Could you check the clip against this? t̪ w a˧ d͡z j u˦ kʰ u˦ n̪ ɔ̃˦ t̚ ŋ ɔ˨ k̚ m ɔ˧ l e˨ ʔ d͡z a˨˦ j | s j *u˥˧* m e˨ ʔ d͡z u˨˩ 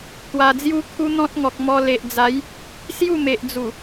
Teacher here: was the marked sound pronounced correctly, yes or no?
yes